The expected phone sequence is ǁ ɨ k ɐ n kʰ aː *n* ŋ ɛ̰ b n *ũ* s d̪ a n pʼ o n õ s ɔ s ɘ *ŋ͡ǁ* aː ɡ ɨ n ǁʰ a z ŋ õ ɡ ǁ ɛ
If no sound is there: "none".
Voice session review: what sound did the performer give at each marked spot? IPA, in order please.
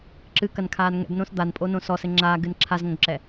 n, õ, ŋ͡ǁ

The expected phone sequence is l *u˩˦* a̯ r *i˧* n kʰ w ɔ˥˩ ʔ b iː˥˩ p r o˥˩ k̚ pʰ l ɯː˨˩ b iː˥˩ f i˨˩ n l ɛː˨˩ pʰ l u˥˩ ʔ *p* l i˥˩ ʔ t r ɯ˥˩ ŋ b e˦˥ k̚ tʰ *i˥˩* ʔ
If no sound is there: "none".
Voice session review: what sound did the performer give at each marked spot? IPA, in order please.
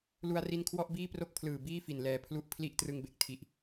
u˧, i˧, pʰ, i˦˥

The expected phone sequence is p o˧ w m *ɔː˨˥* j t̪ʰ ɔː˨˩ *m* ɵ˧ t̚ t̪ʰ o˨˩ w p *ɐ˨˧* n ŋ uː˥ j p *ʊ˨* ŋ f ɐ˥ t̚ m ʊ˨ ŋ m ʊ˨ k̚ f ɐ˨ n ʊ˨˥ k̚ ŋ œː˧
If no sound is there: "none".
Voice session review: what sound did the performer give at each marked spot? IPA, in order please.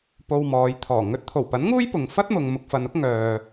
ɔː˨˧, ŋ, ɐ˨˥, ʊ˨

